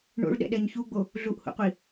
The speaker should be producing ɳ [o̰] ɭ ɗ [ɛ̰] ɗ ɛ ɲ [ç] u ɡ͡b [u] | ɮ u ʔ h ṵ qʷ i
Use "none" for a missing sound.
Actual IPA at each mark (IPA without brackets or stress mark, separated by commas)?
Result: o̰, ɛ̰, ç, o